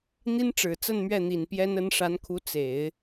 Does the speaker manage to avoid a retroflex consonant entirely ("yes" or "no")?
no